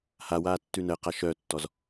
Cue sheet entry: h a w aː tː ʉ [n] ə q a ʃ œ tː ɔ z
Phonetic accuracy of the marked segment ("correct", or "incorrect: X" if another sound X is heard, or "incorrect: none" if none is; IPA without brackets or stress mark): correct